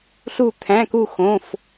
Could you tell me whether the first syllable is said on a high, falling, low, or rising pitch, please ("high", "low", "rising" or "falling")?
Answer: falling